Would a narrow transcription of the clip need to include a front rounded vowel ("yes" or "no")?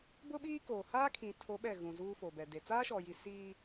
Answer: no